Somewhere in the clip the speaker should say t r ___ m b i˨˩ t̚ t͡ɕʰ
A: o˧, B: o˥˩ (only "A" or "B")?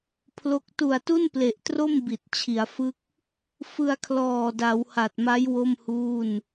B